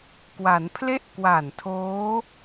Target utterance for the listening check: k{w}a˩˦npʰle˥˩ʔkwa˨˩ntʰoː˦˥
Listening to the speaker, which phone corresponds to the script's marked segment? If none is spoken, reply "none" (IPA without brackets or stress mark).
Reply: w